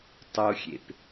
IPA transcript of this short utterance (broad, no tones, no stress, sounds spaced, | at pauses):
tˤ o xʲ ḛ p